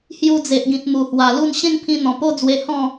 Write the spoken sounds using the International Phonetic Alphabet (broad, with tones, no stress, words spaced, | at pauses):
hju˧d͡ze˨ʔɡĩ˨t̚ mu˨˩hwa˨˩lu˥˧n ɕẽ˥˧ŋpʰĩ˧ n̪ɔ̃˨˩po˦d͡zwe˧ hɔ̃˥˧